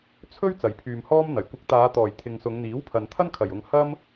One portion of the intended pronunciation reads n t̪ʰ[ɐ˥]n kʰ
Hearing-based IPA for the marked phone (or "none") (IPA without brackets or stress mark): ɐ˥